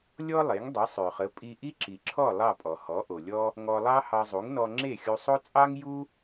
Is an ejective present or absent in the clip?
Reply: present